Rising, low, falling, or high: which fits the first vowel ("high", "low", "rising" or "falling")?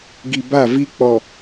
low